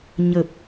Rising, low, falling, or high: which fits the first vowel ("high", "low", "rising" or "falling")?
low